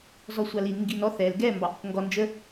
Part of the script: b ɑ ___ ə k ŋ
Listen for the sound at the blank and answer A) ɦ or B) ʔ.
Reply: B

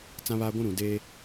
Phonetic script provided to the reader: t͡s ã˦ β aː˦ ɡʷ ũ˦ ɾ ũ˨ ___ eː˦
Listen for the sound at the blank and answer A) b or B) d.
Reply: B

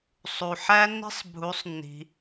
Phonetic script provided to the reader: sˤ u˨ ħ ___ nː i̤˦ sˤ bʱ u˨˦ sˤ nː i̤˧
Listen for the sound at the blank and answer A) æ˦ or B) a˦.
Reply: A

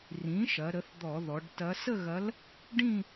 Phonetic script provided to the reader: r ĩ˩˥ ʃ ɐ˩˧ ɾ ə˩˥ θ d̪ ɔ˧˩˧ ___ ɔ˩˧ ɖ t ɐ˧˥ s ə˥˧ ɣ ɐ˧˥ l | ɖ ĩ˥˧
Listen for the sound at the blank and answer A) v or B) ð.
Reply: B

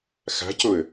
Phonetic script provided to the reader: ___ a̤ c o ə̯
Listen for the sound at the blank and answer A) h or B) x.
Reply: B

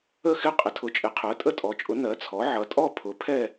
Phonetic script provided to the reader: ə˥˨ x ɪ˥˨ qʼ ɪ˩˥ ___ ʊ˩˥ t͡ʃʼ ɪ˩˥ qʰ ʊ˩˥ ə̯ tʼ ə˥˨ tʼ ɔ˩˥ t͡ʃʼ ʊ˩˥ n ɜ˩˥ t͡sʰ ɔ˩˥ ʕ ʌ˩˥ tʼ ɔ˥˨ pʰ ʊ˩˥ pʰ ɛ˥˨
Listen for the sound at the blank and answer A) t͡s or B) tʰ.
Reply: B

